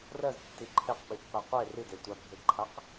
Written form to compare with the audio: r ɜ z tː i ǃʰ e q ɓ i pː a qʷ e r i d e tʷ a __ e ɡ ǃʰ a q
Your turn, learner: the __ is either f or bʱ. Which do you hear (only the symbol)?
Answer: bʱ